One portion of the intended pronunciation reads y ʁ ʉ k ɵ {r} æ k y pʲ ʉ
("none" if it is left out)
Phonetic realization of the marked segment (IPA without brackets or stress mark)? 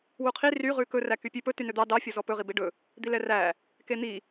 r